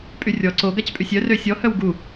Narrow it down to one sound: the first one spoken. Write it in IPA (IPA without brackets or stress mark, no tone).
pʼ